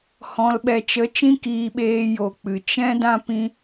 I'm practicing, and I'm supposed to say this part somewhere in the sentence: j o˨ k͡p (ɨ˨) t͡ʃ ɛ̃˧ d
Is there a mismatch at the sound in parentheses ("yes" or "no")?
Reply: no